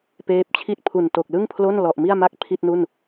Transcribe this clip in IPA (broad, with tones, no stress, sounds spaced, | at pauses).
p eː˦˥ p̚ t͡ɕʰ i˥˩ t̚ pʰ u˨˩ n t o˨˩ k̚ l ɯ˥˩ ŋ pʰ l o˥˩ n l ɔ˨˩ ʔ m i˥˩ a̯ m a˥˩ k̚ pʰ i˥˩ t̚ n u˥˩ n